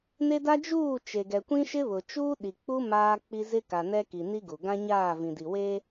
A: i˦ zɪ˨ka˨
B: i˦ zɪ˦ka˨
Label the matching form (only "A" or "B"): B